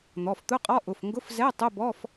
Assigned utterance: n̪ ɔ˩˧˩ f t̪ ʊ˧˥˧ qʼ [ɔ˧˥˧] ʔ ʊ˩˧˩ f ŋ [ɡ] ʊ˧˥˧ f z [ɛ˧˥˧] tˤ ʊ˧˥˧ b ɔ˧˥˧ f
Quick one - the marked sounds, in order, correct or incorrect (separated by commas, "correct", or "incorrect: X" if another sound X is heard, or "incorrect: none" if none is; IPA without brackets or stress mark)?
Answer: correct, correct, correct